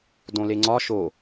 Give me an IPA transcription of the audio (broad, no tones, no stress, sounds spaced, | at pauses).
d õ l e ŋ͡ǀ ɒ ʃ o